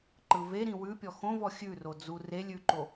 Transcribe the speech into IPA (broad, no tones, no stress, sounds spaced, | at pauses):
ǃ ɯ v e ɾ ĩ w ʉ pʲ ɔ x õ v ɔ xʲ ʉ r o d͡z u r e lʲ ʉ ǃ o